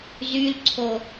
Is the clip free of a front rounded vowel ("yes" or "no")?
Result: no